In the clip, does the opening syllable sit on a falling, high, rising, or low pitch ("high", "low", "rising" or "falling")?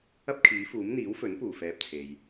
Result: high